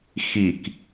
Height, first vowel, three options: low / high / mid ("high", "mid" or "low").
high